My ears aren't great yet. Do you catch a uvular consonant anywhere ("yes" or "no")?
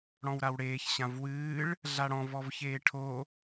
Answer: no